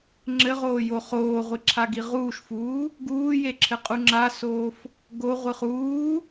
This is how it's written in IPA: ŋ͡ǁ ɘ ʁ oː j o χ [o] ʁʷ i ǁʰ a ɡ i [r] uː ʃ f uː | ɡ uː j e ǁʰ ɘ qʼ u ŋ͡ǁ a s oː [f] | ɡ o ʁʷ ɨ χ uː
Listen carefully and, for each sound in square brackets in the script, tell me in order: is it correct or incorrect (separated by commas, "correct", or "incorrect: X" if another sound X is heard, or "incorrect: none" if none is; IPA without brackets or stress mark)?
incorrect: oː, incorrect: ʁ, correct